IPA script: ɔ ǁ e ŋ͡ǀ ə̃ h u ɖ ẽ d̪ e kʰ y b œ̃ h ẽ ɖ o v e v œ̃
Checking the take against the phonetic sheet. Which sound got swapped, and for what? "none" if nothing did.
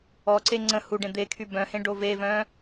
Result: ǁ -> ǀ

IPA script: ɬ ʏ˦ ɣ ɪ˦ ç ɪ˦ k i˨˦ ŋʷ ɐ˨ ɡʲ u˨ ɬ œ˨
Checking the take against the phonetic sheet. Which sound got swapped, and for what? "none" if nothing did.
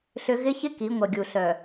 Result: none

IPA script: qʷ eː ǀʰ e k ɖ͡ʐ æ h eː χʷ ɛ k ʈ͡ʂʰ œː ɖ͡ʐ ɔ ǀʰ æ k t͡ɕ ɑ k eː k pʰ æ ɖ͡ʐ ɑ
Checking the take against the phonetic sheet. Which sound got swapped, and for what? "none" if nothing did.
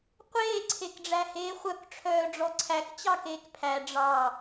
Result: ɛ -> œ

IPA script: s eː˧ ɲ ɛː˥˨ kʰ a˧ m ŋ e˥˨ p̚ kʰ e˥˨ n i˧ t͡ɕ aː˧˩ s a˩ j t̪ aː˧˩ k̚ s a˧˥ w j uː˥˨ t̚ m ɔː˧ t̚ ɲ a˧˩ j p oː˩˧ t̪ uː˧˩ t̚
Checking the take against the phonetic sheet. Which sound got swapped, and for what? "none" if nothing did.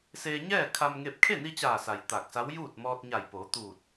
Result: none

